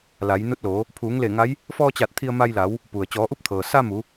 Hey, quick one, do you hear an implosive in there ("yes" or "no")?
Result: no